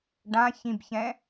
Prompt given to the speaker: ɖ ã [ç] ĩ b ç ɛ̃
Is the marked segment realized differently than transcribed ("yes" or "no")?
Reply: no